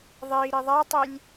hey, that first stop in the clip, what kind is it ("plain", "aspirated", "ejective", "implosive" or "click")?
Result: plain